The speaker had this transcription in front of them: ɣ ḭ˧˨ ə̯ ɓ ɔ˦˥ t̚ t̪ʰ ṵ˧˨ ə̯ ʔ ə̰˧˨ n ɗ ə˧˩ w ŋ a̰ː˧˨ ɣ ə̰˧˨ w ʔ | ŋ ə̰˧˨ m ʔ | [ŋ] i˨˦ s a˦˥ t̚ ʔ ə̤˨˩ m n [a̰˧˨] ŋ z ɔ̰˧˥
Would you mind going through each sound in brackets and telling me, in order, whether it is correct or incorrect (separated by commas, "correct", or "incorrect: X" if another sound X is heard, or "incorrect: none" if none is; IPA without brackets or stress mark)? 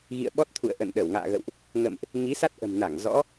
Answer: correct, incorrect: a˧˩